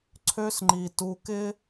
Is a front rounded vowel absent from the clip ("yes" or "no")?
no